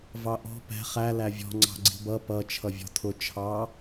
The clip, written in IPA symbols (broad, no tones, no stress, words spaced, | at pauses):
vɑʔɔ̤ pɛ̤ χæ lævʲɔ̤ ŋ͡ǀɑ̤ɡ͡ǀi̤bʌ pʌ t͡ʃʰʌvʲɔ̤tʰʊ t͡ʃʰɑ